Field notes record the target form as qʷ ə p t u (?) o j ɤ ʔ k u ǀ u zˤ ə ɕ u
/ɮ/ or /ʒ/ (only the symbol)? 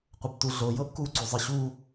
ɮ